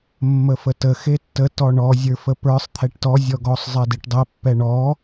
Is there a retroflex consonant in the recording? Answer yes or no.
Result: yes